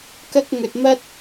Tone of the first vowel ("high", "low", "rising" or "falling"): high